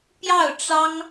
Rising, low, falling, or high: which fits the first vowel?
falling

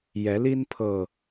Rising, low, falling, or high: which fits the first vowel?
rising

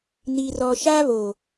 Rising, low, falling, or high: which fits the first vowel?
low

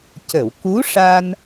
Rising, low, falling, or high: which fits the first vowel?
low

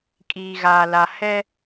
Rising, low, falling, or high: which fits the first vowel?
low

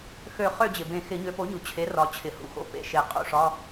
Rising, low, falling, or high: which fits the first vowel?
falling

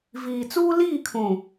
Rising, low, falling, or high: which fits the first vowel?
low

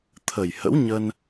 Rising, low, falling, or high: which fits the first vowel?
low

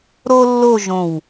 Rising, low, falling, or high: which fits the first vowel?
high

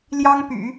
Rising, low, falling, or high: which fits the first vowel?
high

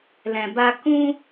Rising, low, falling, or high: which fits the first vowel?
low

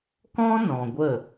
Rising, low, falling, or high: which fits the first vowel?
high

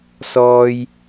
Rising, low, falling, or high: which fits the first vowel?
high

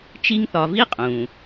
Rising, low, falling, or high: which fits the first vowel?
high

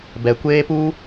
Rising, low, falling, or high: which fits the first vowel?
low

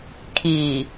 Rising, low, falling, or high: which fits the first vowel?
low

